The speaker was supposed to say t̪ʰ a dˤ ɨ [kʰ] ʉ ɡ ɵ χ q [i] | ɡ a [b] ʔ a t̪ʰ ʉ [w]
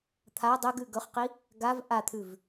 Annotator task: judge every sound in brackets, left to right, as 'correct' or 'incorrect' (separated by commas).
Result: incorrect, correct, incorrect, incorrect